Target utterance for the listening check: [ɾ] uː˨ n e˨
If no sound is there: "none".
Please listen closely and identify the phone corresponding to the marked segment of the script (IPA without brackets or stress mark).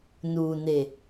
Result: n